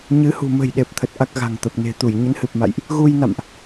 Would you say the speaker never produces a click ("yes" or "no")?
yes